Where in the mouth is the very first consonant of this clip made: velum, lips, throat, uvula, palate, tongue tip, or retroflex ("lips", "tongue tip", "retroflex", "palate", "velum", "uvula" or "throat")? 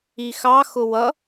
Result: velum